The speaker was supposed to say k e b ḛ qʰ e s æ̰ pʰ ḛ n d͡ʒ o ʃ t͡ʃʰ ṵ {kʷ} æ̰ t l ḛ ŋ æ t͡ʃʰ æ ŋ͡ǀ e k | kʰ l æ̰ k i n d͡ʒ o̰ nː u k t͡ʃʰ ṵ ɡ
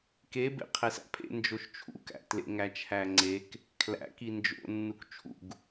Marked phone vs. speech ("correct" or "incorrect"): incorrect